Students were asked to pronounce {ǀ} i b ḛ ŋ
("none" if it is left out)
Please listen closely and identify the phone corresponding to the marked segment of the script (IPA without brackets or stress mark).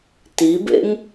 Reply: t